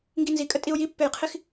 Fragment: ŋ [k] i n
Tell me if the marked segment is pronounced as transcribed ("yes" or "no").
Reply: no